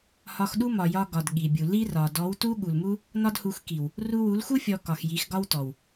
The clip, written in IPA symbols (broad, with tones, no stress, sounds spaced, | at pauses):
h ɒ˧ x ɗ u˦ m ɒ˨ j ɒ˧ ɡ ɒ˨ d ɠ i˨ bʲ u˨ l i˦ r ɒ˨ d ɔ˨˦ w t u˦ ɠ u˨ l m u˦ | n ɒ˦ d h u˧ x k i˨ w | r u˧ w u˨˦ l x u˦ fʲ ɔ˧ k ɒ˨ x j i˨˦ x ɡ ɒ˦ w t ɔ˨ w